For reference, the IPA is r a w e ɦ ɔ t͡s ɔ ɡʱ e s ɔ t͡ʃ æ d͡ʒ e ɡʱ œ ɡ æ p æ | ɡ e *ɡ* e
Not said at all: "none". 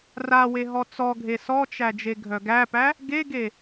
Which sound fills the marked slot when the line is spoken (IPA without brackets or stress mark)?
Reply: ɡ